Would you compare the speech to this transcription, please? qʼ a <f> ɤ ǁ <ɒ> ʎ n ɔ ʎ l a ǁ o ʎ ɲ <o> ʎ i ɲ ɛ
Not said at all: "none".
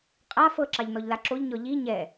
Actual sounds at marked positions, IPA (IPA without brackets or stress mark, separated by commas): f, ɑ, ɔ